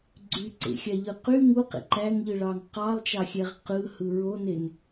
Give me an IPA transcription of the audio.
ɡ͡ǀyǀḛxʲɑʎɯ qy ŋuqḛ ǃæŋʎɯɭɑŋ qɑlˠt͡ʃɑxʲæʁ qɯhɯ ɹonen

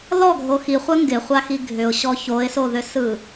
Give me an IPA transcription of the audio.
lɔɡʱo xiχʷɜ ŋɡɪχʷaxi ɡʱʏʊ̯ɕɔ çoɪ̯soðʏsɯ

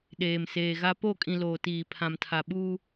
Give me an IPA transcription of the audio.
ɗeː˨mseː˨ɣa˦ po˦˨kʼĩ˨ loː˨tiː˨ pʰã˨mtʰa˨ɓuː˦

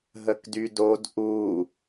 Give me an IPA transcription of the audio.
ɦəkdydod ʔu

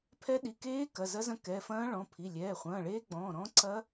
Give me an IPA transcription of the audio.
pʰɛ˦˥ ɗi˩˧˩keː˦˥ kɐ˩˧˩zɐ˦˥zɐ̃˦˥kɛ˩˧˩ fɐ̃ː˦˥ɭɔ̃˩˧˩pʰi˩˧˩ lʲɛː˩˧˩χʷɐ̃ː˩˧˩ɭeː˦˥ ɡ͡bɔ̃ː˩˧˩ɾɔ̃˦˥ǀɐ˦˥

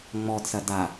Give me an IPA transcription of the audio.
ŋ͡mɔdsɐ da

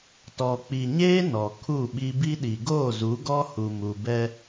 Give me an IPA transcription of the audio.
tɔ˨k͡pi˨ɲeː˦ nɔ˨kʰu˦˨ɓi˦ bi˦ɗi˨ ɡoː˦˨zu˨˦ɡɔ˦ hu˨mu˨bɛ˦

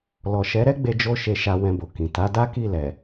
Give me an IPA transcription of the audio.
lɔ˨ʃɛ˨˦ɾɛ˦ɡ͡be˧ d͡ʒo˦ʃe˧ʃa˧ wɛ̃˧bo˨kĩ˨ ta˨˦da˦ ki˦˨lɛ˨

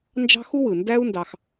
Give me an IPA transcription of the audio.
nd͡ʒɑ̤˥ xu˥wɯ˩ ndæ˥u̯ ndɑ˨x

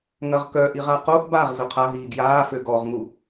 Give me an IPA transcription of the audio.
ŋɐʁkœ ʔiʁaqoʔ baʁ zʊqʰaɦiː ɡjaː føɡɔʁŋu

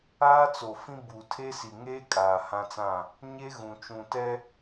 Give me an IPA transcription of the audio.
aː˦t͡so˨fĩ˦ bu˨ tʰe˦si˨ ŋeː˦ kʼaː˨hã˦t͡sã˦˨ | ɲe˦ɣũ˨ t͡ʃũ˨tɛ˦

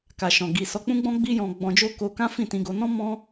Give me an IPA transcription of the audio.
ka˨ʃɔ̃˨ ɡi˨sɔ˧k͡pũ˦ɡ͡bɔ̃˦ ɡ͡bi˦jɔ̃˧ ɡ͡bɔ̃˧d͡ʒo˦ko˧ kã˦fĩ˦˨tĩ˧ɡo˧ nɔ̃˦ mɔ̃˦

